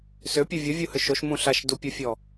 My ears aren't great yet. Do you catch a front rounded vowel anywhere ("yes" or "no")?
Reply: yes